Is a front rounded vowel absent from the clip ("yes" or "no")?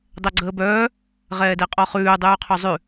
no